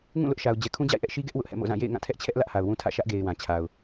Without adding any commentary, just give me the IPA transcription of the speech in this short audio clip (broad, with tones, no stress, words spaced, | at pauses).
ŋũ˦˨lʊ˦ʔʃa˨ʊ̯ d͡ʑɛ˨kʰũ˦d͡ʑa̰˦˨ɪ̯ʔɛ˦ʔ ʃi˦ɡɛ˦ʔ wʊ˦ʔhɛ̰˦˨mo̰˦˨zã˦˨ jḛ˦˨ɪ̯ ŋã˦˨tʰɛ˦ʔt͡ɕʰɛ˦ʔ lä˦ʔha˨ʊ̯wũ˦ tʰä̰˦˨ʃä˦ʔɡe˨ɪ̯ wã˨t͡ɕʰa˨ʊ̯